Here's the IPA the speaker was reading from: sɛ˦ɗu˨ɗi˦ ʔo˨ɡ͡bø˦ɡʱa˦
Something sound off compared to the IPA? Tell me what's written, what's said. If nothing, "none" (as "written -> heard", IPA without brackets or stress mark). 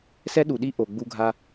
ø˦ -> u˦